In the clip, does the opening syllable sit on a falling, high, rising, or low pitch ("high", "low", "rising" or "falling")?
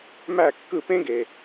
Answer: falling